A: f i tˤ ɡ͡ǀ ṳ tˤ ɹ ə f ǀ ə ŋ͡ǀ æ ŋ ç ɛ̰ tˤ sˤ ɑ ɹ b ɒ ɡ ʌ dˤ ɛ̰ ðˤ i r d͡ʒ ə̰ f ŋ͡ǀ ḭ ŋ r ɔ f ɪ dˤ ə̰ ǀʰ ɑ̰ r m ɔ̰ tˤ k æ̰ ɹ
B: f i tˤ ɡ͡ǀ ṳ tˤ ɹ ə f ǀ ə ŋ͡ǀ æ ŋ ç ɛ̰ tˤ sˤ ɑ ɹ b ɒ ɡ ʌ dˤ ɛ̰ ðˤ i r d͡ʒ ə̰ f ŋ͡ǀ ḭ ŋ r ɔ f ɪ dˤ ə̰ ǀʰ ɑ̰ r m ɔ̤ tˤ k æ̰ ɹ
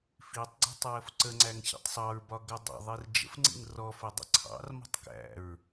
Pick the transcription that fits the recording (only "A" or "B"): B